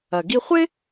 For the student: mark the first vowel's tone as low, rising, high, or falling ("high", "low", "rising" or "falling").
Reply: low